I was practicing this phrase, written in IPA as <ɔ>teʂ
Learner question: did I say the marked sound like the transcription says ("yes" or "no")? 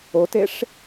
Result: no